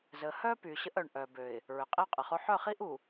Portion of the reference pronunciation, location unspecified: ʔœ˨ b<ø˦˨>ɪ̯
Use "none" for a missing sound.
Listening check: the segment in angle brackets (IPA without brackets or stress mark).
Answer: ø˨